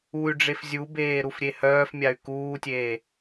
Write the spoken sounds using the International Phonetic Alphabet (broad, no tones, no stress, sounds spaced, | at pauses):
u y̯ ɖ͡ʐ e f zʲ u b eː ɾ u f ɾʲ e h œː f mʲ a y̯ k uː tʲ eː